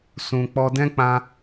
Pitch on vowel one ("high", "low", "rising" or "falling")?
low